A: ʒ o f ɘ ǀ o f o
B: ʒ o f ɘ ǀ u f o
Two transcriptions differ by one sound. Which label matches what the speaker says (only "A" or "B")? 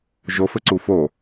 B